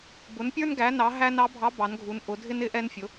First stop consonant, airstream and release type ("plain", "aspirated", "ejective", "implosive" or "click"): plain